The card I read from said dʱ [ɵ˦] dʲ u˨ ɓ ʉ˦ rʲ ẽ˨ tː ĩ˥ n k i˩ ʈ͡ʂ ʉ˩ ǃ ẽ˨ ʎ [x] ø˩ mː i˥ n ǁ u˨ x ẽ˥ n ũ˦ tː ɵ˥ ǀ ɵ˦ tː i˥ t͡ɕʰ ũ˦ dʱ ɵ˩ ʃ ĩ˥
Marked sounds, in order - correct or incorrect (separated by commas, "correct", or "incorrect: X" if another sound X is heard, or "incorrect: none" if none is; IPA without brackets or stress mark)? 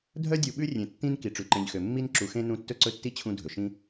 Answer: incorrect: œ˦, correct